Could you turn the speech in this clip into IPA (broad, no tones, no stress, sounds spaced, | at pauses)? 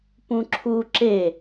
p ũ ǁʰ u ǁ e